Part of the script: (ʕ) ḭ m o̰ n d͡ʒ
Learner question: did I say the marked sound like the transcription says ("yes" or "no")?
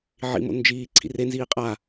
yes